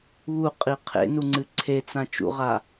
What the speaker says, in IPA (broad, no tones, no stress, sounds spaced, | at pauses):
β u qʼ i qʰ ḛ n u ŋ͡ǀ ɨ ǀʰ e t͡s ã t͡ʃ ṵ ʁ a